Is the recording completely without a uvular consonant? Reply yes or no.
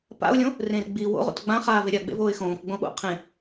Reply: no